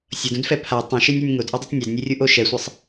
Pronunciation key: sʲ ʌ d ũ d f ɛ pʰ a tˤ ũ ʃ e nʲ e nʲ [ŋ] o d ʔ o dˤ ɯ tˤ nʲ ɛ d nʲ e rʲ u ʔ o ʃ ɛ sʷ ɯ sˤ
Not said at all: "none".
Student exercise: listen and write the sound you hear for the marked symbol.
ŋ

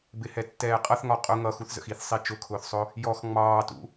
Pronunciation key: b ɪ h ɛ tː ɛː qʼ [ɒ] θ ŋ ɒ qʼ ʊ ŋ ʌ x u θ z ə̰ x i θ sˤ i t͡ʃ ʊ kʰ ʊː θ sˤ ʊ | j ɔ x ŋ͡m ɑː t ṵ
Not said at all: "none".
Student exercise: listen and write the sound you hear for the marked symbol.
ʌ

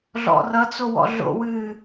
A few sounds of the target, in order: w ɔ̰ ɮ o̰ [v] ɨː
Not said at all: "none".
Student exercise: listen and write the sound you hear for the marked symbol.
w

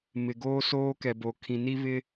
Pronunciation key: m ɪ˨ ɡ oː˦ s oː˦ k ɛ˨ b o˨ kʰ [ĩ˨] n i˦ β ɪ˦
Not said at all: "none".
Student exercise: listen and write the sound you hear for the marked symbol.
ĩ˨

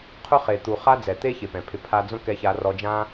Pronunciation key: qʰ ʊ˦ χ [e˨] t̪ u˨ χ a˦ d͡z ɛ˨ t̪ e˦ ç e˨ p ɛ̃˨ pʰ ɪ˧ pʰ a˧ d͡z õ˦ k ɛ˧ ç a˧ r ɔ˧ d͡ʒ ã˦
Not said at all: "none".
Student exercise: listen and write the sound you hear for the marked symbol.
e˨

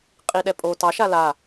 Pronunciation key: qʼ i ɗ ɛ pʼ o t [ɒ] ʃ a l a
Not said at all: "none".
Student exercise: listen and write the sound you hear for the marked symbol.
ɑ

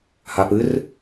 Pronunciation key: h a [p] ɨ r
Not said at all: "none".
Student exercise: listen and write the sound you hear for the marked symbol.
p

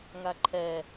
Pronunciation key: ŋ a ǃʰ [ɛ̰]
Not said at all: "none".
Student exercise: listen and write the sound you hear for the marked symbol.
ɛ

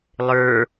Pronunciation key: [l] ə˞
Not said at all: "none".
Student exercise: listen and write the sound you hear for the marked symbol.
lˠ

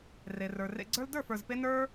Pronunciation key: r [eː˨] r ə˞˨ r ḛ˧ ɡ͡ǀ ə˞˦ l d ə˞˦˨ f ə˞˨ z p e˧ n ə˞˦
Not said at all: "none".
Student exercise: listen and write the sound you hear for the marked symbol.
e˨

